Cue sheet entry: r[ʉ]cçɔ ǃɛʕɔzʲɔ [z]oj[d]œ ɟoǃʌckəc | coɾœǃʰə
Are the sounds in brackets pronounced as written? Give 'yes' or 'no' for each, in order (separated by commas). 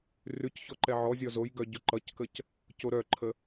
yes, yes, no